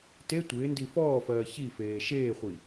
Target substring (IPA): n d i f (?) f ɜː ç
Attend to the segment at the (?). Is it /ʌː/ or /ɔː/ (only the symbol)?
ɔː